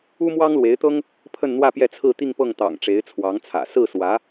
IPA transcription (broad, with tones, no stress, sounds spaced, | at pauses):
u˥ m w ɑ˥ ŋ l w e˧˥ ɪ̯ t̪ ɤ˥ ŋ | pʰ ə˥˧ n n̪ w ä˥˧ p j ɛ˥˧ t͡sʰ ɹ̩˥˧ t̪ i˥˧ ŋ p ɤ˥˩ ŋ t̪ ɑ̰˨˩ ŋ ʈ͡ʂ e˧˥ ɪ̯ t͡sʰ w ɑ˧˥ ŋ t͡sʰ ä̰˨˩ s ɹ̩˥˩ s w ä˧˥